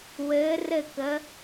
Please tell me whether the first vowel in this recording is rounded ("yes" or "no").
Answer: no